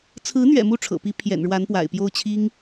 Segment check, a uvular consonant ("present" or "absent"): absent